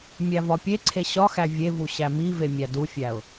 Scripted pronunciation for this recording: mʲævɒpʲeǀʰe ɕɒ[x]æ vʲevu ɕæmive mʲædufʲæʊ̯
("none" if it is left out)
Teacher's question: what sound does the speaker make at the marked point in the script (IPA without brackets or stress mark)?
x